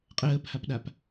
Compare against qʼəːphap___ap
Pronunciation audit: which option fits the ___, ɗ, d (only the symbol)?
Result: ɗ